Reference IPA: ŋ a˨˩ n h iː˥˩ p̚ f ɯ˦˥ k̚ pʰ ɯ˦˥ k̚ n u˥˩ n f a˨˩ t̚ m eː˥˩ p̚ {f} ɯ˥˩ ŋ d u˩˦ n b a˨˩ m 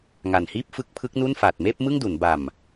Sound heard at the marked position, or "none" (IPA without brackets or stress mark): m